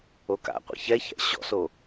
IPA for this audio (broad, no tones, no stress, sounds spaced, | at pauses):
o k a̰ qʷ ḛ ç ɛ ç ɛ̰ ɕ ɔ̰ s o